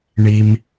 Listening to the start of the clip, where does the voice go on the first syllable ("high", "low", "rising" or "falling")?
low